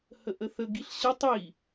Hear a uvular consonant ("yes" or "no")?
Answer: no